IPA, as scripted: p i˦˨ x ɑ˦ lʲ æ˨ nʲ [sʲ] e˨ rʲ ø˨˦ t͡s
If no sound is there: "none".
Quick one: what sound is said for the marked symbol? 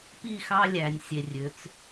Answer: sʲ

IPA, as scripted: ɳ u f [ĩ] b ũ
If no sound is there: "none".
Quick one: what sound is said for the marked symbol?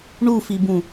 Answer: i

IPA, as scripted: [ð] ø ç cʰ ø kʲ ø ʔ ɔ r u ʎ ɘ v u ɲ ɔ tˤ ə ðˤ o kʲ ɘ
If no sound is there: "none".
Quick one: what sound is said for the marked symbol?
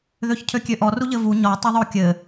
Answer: ð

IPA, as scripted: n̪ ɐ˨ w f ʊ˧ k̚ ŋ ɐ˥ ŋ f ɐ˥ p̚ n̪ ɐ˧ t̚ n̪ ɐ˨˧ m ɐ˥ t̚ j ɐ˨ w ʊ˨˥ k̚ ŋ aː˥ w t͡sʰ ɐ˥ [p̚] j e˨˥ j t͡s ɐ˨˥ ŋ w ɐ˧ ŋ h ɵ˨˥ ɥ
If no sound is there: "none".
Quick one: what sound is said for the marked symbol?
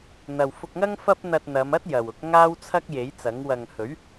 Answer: k̚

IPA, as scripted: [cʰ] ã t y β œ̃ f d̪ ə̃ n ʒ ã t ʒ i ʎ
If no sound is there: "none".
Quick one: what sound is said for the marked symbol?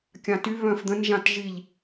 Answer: kʲ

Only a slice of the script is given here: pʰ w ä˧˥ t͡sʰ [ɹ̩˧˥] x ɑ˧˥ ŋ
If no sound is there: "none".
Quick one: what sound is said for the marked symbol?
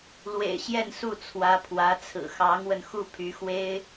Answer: ɹ̩˨˩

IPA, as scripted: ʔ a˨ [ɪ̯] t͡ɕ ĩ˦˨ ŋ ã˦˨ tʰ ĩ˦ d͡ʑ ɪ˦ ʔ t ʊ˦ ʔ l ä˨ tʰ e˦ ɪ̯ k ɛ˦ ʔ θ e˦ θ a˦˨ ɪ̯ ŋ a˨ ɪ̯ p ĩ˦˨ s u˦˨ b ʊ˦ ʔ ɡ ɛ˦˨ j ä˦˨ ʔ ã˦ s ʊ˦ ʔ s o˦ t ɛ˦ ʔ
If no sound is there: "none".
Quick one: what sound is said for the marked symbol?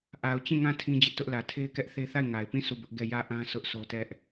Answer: ʊ̯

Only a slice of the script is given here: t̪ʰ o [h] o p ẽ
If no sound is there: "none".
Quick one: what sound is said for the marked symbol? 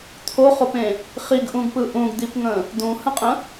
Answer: χ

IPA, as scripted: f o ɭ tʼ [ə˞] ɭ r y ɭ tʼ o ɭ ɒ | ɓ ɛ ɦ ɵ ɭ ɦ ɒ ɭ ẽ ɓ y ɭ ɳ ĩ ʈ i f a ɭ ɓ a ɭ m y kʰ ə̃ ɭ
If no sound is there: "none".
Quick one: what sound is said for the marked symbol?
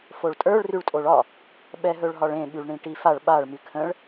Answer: ə˞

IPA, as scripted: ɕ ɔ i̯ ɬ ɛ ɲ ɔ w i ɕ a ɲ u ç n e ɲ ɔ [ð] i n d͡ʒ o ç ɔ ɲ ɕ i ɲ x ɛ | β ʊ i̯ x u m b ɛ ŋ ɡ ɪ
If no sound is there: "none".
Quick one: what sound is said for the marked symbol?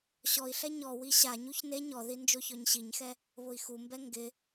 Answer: ð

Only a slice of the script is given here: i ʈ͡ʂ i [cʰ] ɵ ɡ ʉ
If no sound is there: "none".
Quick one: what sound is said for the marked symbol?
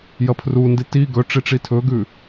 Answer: tʰ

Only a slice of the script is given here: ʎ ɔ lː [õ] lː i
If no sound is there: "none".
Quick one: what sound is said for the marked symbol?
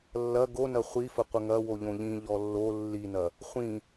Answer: o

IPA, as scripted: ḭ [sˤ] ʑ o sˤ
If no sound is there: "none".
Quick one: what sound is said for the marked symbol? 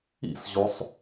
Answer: s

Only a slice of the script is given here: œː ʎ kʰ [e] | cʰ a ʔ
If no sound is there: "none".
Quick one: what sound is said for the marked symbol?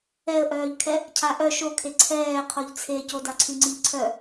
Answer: ɛ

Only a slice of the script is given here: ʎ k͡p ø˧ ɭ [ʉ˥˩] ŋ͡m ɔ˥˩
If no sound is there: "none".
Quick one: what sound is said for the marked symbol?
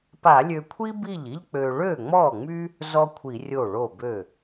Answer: ø˥˩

